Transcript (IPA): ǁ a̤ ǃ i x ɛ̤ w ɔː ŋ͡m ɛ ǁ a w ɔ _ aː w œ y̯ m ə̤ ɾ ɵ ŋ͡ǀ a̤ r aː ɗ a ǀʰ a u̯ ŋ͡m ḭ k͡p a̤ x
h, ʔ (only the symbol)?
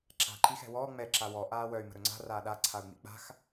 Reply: ʔ